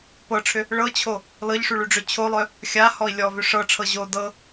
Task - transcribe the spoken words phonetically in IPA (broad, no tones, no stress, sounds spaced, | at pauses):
p ɤ ʈ͡ʂʰ ʏ | ɭ ɤ t͡ɕʰ o | l ɤ ʎ ʂ y ɭ y ɖ͡ʐ ʏ t͡ɕʰ o lˠ œ | xʲ a h ɔ i̯ lʲ ɔ v ʏ ʂ ɤ ʈ͡ʂʰ ɤ ʑ o d ɤ